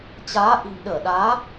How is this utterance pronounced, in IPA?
t͡ɕaː˨˦ ʔi̤˨˩mɗəː˧˩ɗaː˨˦

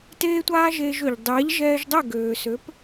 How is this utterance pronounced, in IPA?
teː˥tʷaː˥ʒeː˧ʒø˩ʎ dˤɛː˩˥ʎʒɛː˧ʒdˤɛ˥˩ ɡøː˩sø˩˥p

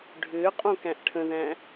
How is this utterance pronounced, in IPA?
ɖʱʏːqʼõkæ̃ʔ ʈʰə̃ðæ̃

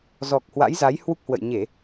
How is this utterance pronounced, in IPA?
zɔ˨˩k̚hwa̰˧˥jza˨˦j hwu˦˥k̚hwə̰˧˨j ɲe˧˩˨

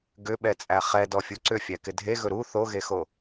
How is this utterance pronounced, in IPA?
ɡʏɓɛt͡sʼæ χɛdɔfʲu ǀʏfʲækɪ dʱeɣɵ ɾu θoɣexo

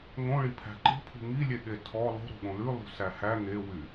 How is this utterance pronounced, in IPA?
ŋõɭi pʰæ̤ǃi̤pʰṳ ŋilʲe ɠetʰɔ lˠo̤ɾo̤ɠõ lʉlˠṳ sæhæ ŋewy

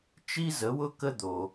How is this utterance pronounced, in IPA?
t͡ʃi˥zə˩˥wʊ˥ kə˥d̪o˩

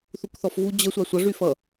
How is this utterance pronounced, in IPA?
θukθɔfvu d͡ʑə sʷasʷʌ ʐyfʌ

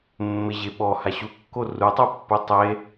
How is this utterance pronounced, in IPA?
mːɪʑe ɓɔha ɕukːo rutˤopːu tˤe

